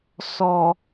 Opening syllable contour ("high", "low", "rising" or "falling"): low